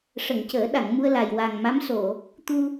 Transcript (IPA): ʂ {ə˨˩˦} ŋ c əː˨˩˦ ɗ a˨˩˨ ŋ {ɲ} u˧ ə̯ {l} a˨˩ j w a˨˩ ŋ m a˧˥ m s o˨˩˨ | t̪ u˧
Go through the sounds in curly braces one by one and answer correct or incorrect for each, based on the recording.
incorrect: ə˨˩˨, incorrect: m, correct

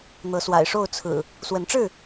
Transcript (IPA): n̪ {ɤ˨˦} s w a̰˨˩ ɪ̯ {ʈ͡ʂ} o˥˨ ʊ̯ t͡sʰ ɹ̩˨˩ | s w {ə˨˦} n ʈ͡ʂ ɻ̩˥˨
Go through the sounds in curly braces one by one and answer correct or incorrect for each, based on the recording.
correct, incorrect: ʂ, correct

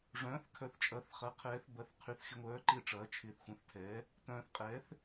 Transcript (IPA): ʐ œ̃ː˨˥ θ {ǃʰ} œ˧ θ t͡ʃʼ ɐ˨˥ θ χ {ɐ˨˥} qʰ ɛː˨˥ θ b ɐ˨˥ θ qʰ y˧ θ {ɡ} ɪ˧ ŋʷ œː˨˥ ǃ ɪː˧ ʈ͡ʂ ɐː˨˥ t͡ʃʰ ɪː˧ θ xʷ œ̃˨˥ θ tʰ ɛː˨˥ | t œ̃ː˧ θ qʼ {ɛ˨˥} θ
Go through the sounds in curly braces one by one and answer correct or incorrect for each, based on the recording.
incorrect: kʰ, correct, incorrect: x, incorrect: ɛː˨˥

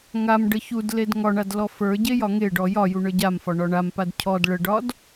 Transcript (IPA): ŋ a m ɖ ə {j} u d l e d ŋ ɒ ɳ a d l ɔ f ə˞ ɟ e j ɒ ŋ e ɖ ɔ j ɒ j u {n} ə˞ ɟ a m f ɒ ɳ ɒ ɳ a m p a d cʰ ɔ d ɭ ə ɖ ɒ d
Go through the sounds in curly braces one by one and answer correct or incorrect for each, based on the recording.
incorrect: ç, incorrect: ɳ

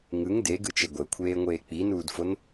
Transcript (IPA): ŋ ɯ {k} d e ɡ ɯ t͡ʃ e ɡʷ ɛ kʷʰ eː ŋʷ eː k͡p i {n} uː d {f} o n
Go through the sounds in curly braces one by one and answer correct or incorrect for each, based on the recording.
incorrect: ŋ, correct, correct

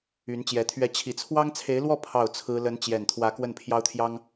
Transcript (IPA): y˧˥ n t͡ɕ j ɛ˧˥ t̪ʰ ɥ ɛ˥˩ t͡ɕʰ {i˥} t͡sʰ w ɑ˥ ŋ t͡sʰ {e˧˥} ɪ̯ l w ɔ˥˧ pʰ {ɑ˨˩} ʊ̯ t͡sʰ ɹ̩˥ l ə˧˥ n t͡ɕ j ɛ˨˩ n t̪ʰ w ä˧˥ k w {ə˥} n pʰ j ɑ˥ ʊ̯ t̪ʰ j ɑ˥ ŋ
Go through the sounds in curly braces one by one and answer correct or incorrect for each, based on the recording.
incorrect: i˨˩, correct, incorrect: ɑ˥˩, incorrect: ə˥˩

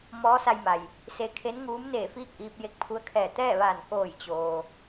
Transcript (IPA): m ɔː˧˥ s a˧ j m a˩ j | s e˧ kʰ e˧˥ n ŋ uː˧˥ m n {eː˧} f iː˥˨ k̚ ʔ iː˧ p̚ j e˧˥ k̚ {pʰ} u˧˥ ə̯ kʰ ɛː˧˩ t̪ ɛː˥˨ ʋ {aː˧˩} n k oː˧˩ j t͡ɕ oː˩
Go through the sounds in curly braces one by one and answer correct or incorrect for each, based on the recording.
incorrect: eː˧˩, correct, correct

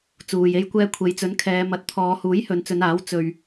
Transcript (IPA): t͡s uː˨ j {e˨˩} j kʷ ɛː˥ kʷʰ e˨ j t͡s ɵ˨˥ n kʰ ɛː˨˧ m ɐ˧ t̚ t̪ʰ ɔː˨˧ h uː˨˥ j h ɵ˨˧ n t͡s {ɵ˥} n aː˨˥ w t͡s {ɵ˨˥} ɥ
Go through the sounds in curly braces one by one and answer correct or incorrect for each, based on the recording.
incorrect: e˥, incorrect: ɵ˨˧, incorrect: ɵ˧

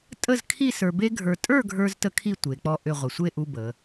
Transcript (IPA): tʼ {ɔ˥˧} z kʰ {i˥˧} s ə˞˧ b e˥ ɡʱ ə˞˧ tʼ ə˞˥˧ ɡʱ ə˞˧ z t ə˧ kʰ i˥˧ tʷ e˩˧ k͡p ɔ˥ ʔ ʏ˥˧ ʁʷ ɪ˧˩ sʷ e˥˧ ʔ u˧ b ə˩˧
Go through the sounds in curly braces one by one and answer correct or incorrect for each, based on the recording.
incorrect: ə˥˧, correct

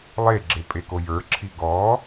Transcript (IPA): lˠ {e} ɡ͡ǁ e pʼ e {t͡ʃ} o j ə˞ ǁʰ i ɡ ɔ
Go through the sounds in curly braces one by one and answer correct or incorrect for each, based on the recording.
correct, incorrect: k

